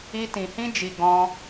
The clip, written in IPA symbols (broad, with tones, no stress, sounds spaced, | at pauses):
i˦ t ĩ˧ h ĩ˦ d͡ʒ i˧ ɡ ɔ̃˦